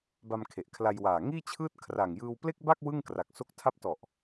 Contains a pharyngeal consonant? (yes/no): no